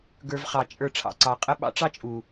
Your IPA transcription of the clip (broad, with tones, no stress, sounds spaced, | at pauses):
ɡ ə˞˧ v χ ɑ˨ t͡ʃʼ ə˞˧ ʈ͡ʂʰ ɑ̰˨ ǀ ɑ˨ qʼ ə˦ ɓ ɑ̰˦ ʈ͡ʂ ɑ˦ t͡ʃʼ u˨